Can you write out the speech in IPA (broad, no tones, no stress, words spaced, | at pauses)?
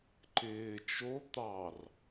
ǃɪː t͡ʃo t̪ɑr